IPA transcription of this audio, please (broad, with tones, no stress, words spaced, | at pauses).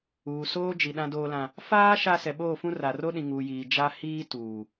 uː˨soː˦d͡ʒi˨ ɗã˦doː˦lã˦ | faː˦ ʃa˦ sɛ˨ɓoː˦˨fũ˦ ra˨ro˦ɗĩ˨ ŋuː˨jiː˨ d͡ʒa˦ hiː˦tuː˨